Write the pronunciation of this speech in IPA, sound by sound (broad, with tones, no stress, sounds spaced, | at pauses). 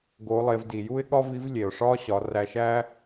ɡ o˩˧ lˠ e˩˧ v d i˩ j u˥ ɪ̯ ɠ ɒ˥ v i˧˥ v lʲ e˩ ʊ̯ ʂ ɒː˥ ɕ ɒ˩˧ r æ˧ ʃ æː˥